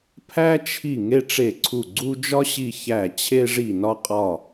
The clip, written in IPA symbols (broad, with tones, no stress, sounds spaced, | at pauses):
pʰ æ˥ t͡ʃʰ i˦˨ ŋ e˥ ʈ͡ʂ e˦˨ ǀʰ u˦˨ ɡ͡ǀ u˥ d͡ʒ ɒ˥ ɕ i˦˨ ç æ˦˨ t͡ɕʰ e˥ ʐ i˦˨ n ɒ˥ qʼ ɒ˦˨